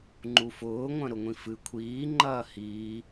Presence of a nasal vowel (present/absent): present